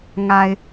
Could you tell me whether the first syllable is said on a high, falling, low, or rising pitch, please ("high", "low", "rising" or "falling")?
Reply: low